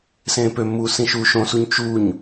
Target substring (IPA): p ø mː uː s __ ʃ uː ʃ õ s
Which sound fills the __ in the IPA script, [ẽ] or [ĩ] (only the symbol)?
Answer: ĩ